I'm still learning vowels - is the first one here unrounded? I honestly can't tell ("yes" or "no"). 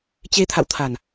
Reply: yes